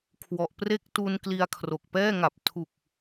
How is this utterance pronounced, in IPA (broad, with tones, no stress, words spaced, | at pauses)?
kʰwɔ˨˩ʔpre˥˩k̚tu˧n kli˧a̯kʰro˨˩k̚pɛː˥˩ŋa˨˩p̚ tʰu˨˩k̚